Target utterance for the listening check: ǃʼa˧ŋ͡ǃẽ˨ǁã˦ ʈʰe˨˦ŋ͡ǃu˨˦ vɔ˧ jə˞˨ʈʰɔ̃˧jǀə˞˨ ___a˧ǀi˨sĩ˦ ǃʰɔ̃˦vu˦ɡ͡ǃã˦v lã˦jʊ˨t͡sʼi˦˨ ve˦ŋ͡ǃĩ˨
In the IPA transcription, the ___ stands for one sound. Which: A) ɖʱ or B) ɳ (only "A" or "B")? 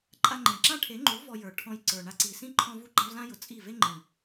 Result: B